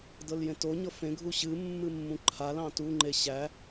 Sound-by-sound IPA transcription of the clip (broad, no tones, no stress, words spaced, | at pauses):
dɤljẽtoɲɤ fẽɡʱu ɕɨmːɨ mːũǃʰalɑ̃ tuŋ͡ǃe ɕæ